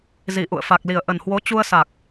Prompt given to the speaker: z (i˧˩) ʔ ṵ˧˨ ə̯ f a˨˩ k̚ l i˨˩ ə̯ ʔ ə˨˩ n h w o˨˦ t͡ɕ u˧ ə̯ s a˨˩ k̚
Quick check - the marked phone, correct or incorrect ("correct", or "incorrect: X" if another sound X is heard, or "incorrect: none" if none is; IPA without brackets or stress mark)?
correct